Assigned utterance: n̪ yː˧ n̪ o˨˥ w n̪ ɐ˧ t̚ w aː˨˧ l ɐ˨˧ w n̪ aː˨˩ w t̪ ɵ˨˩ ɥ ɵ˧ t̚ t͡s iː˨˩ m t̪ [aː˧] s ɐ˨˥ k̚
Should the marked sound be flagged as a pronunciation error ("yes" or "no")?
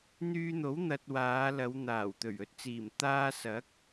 no